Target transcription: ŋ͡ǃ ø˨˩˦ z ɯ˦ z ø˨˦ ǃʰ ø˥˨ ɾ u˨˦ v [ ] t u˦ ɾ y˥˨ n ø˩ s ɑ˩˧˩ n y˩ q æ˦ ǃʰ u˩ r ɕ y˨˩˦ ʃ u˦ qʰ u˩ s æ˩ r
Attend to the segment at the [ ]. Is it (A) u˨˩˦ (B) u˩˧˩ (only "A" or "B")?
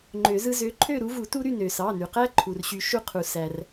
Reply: A